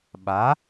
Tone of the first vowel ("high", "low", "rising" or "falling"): rising